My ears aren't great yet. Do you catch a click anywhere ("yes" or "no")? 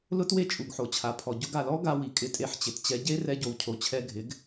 no